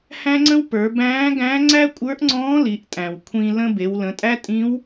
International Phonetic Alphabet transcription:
h æ̃˥ ŋ͡ǀ ə̃˥ w p ə˞˩˧ b æ̃ː˧˥ ɡ æ̃˧˥ ŋ͡ǀ æ˥ kʷʼ ə˞˧˥ ʔ ŋ͡ǀ ɔ̃ː˧˥ l i˩˧ ʔ tʼ æ̃˩ w kʷʰ ĩ˧ l ə̃˧ b e˩˧ w l ə̃˩˧ tʼ æ˥ tʼ ĩ˧˥ w

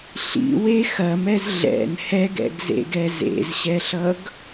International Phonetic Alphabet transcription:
ɬ ḭ w e x ɐ m ɛ z ɮ ɛ̰ n h ɛ ɡ ɛ̰ ɡ z ḛ ɡ ɛ z ḛ z ɕ ɛ ɬ ʌ ɡ

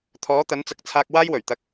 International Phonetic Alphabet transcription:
t̪ʰ ɔː˨˥ t̪ ɐ˨˥ n t͡s ɐ˨˥ k̚ t͡sʰ aː˧ k̚ w aː˥ j w ɵ˨˩ ɥ t̪ ɐ˧ k̚

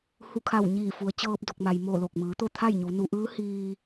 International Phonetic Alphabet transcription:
h u˧˩ kʰ a˧˩ w ɲ iː˧˩ f u˩˧ ə̯ t͡ɕ ɤː˧ p̚ d o˧˩ k̚ m a˩ j m o˧˩ l o˧˩ k̚ m ɯː˩˧ t̪ o˥˨ t̪ʰ a˥˨ j ɲ u˩˧ n u˩˧ ʔ ɯː˧˥ h iː˧

